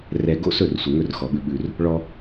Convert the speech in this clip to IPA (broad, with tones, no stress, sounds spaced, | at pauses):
r ɛ˨ ɡ o̰˦ s ɵ˦˨ r sʷ ə˨ ŋ ɵ˦˨ r x ɔ˨ ɓ ʉ˦ ɓ ʉ˦ r | ɭ ɔ˦